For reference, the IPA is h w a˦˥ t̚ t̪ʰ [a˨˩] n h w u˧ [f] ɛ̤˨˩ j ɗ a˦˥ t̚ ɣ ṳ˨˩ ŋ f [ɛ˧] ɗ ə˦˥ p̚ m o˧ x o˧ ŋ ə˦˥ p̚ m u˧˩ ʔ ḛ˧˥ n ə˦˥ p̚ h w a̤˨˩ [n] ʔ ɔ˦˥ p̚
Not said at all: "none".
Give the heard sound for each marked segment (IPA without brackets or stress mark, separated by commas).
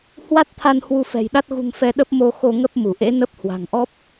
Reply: a˧, f, ɛ˧, ŋ